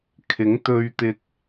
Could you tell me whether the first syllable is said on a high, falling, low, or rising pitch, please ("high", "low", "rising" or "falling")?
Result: rising